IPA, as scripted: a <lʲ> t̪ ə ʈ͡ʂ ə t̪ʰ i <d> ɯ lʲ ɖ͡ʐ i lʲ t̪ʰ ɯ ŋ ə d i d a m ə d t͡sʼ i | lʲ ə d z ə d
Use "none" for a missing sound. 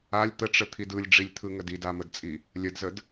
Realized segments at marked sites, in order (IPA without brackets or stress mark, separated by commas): lʲ, d